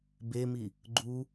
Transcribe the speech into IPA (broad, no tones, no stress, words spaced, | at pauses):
bemi | ɡ͡ǃu